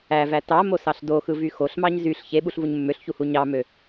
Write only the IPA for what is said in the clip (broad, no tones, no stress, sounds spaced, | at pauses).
æ v æ t ɑ m o s ɑ ɬ d o x ɯ v y x o ɬ m ɑ ɲ z y ɬ ç e ɓ u ɬ v u ɲ mː ø ɬ ç u h u ɲ ɑ m ø